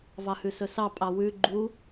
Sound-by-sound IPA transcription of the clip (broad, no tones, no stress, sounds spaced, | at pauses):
v ɑ h ʉ s ɵ s ɑ pʼ ɑ w ʉ ɡ͡ǃ u